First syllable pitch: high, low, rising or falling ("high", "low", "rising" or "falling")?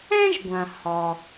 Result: high